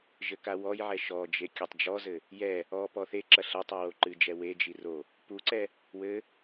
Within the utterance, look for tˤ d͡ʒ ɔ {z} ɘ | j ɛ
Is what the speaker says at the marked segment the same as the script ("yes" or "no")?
yes